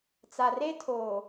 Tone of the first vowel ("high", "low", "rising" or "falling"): low